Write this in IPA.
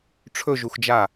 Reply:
ʈ͡ʂʰɵʒuxd͡ʒa

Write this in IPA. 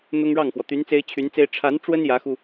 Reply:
n̪ʊ˥ŋɻɑ˥˩ŋxwɔ˩ t̪y˧˥n t͡se˥ɪ̯t͡ɕʰy˧˥nt͡se˥ɪ̯ ʈ͡ʂʰa˧˥nʈ͡ʂwə˥n jä˧˥xu˧

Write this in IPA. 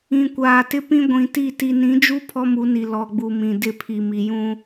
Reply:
ĩ˨ kʷaː˨tɪ˦pĩ˦ ɡʷĩ˨ti˦˨ ti˨nĩ˨˦d͡ʒu˦ pʰɔ˦mu˨˦ni˨ lɔ˨ɡ͡bu˨mĩ˨ dɪ˦˨pʰi˨ mi˨jũ˦

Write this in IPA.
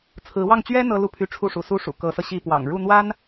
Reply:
t͡sʰɹ̩˧˥wɑ˥˩ŋ t͡ɕɥɛ˥ n̪ɤ˥ lu˥˩pʰy˧˥ʈ͡ʂʰu˥˩ʂṵ˨˩ su˥ʂṵ˨˩ kɤ˧˥sɤ˧ ɕi˥˩pwɑ̰˨˩ŋ ɻu˥˩n̪wa˥n

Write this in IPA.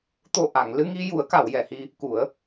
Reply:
t̪o˨˩ ʔa˨˩˨ŋlɨ˧ŋi˧ ju˨˩˦ə̯ka˨˩˨wjɛ˨˩˨hi˧ | ku˨˩˦ə̯

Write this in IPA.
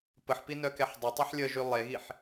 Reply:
pəħpi nœkɛħdˤœtˤyħ lʲəʒy lˠeɣiħ

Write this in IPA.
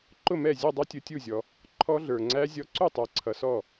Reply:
ǃʊ˥˩mɛ˥˩ zʲɔ˥˩dˤʌ˦˥ tʲʊ˨˦tʲu˥˩zʲɔ˨ | ǃʰɔ˦˥ɮə˞˨ŋ͡ǀæ˦˥ zʲɔ˨˦ǀu˥˩tˤə˞˨ǀʰʌ˨ sɔ˥˩

